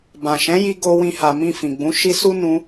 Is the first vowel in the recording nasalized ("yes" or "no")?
yes